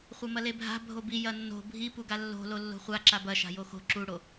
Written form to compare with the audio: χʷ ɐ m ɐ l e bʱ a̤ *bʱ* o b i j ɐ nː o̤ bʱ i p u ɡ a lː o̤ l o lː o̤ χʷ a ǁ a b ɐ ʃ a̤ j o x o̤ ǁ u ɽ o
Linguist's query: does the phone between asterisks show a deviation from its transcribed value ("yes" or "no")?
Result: no